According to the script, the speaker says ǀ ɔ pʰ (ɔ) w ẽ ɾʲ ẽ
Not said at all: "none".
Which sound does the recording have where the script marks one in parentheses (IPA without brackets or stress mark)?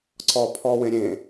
ɔ